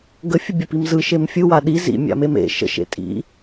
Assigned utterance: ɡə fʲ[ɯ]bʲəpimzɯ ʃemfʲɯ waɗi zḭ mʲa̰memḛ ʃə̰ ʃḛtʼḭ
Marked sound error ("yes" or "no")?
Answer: yes